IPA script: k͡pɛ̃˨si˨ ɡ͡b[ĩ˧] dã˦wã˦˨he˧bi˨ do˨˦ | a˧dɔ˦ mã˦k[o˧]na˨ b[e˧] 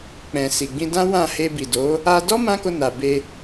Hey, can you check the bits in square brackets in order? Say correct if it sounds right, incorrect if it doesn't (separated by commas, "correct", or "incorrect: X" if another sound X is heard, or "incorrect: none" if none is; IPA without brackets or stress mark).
correct, correct, correct